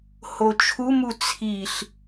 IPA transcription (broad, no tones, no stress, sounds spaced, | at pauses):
h o t͡ʃʰ u m u t͡sʰ i ɬ